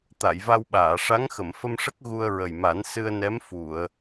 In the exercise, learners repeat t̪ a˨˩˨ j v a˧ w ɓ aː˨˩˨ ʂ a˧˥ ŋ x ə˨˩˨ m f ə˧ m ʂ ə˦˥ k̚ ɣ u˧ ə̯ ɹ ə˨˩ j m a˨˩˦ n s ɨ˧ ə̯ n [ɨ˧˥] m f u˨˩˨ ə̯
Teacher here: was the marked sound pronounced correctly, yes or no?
no